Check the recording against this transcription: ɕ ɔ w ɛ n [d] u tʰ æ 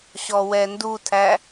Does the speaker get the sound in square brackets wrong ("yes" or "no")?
no